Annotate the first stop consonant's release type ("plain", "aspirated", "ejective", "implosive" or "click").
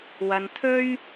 aspirated